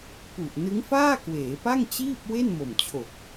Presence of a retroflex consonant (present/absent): absent